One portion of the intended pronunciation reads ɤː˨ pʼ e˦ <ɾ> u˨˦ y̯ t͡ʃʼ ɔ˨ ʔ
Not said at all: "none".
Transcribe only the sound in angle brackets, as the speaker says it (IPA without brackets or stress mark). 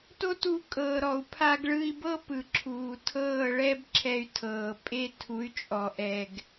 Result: tʰ